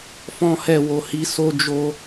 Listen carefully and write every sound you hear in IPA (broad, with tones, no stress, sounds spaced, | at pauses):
f ɔ̃˦ h ɛ˦˨ w o˧ h i˧ s o˦ d͡ʒ o˦